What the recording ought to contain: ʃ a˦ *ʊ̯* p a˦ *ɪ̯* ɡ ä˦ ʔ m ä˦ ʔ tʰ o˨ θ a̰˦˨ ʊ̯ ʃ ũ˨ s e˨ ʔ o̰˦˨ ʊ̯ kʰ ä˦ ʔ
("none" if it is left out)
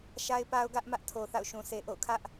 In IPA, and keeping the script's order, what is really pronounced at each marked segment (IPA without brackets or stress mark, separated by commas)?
ɪ̯, ʊ̯